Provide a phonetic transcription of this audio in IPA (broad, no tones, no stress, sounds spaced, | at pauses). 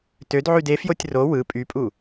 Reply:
t ø d ʕ y d e f j o tʲ r o w ɯ pʼ y pʼ u